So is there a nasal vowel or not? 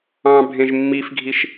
yes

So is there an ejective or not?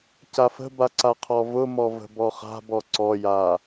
no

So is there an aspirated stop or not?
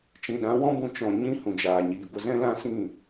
no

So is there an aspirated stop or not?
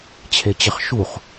yes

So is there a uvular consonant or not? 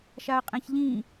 yes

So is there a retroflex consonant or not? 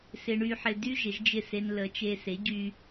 yes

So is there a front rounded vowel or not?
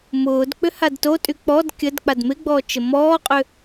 yes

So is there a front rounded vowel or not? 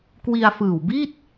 no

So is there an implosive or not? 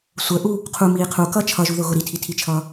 no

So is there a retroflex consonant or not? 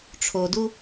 yes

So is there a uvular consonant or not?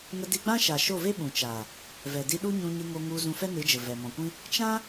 no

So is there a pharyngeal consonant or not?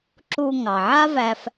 yes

